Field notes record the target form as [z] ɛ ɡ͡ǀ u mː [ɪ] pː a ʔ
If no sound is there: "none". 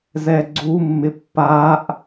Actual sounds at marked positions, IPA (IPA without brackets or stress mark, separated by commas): z, ɪ